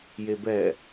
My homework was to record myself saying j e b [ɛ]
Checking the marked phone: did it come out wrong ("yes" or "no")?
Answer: no